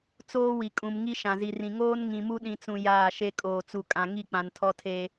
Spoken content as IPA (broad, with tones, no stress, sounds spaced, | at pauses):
t͡s oː˦ w i˨ kʼ ũ˨ m ŋ i˦ ʃ ã˨ z i˨ r ĩ˨ ŋ oː˦ n ŋ ĩ˨ m u˦ ɗ ĩ˨ t͡s ũ˨ j aː˦˨ ʃ e˦ kʼ oː˨ t͡s u˨ kʼ ã˨ ŋ i˦˨ k͡p ã˨ n tʰ ɔ˦ tʰ e˦